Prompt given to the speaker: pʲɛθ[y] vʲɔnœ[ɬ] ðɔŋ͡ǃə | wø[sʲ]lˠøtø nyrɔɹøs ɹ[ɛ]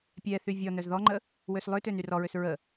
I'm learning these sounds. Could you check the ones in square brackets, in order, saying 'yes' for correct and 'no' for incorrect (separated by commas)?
yes, no, no, no